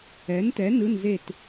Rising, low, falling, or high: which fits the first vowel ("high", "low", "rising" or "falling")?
rising